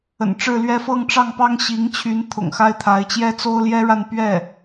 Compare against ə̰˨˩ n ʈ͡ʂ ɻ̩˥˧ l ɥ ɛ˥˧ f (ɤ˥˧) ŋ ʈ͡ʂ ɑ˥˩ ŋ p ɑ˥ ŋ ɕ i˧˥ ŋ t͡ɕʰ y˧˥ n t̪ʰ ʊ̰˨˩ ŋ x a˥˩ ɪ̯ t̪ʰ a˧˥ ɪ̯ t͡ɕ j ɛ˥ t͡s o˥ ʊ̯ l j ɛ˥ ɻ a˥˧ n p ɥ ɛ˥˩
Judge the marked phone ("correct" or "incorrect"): correct